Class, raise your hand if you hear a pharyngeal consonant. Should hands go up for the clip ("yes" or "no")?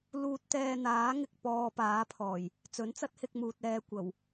no